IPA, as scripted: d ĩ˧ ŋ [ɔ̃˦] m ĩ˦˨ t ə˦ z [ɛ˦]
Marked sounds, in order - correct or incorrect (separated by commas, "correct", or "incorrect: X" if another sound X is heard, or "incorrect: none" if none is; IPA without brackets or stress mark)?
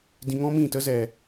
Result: correct, incorrect: ɛ˨